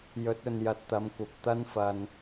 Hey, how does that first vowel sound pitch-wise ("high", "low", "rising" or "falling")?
rising